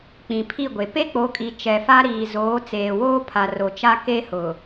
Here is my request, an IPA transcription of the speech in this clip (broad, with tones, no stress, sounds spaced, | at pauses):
k͡p ĩ˨ pʰ i˦˨ ɡʷ e˨ p e˦ k͡p o˨˦ kʼ i˨ t͡ʃ ɛ˨ f a˦ ɾ iː˨ z oː˨˦ t͡s eː˨ w oː˦ pʰ a˨ r o˨ t͡ʃ a˦ k e˦ h ʊ˨